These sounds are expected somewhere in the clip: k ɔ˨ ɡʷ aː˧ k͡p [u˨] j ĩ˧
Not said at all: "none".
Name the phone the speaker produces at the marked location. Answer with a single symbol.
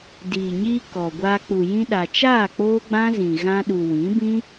u˨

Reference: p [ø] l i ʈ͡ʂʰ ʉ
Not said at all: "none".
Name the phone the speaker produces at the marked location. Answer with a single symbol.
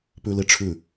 ʉ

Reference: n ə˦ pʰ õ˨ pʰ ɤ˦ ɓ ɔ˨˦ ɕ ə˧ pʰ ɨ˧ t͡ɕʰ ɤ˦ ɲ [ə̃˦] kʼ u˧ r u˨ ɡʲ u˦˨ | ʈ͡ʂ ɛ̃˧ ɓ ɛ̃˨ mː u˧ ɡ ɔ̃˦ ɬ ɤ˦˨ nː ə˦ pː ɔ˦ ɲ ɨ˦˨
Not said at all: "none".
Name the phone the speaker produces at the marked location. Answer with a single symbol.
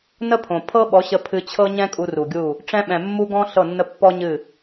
ɛ̃˦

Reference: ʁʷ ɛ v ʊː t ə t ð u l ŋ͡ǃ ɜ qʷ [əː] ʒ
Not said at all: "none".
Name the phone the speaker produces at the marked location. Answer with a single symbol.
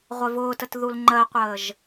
əː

